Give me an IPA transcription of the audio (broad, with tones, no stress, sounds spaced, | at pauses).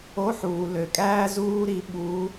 o˧˥˧ ħ uː˩ l ø˩ kʼ æː˥ z uː˥ ɾ i˧˥ ɓ u˧˥